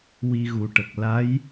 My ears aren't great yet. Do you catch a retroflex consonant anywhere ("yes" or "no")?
yes